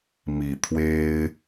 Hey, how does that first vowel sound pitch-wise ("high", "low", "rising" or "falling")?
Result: low